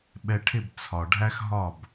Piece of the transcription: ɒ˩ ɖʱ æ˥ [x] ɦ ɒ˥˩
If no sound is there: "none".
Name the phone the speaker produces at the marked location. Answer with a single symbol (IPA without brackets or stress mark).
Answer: x